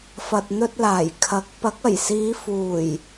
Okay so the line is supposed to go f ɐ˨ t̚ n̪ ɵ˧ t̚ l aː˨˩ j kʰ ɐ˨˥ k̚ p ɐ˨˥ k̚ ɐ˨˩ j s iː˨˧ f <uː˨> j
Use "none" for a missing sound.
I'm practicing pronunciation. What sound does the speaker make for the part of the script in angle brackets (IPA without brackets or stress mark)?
uː˨˩